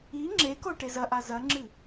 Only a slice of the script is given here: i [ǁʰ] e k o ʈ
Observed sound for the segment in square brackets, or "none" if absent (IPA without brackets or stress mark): ŋ͡ǁ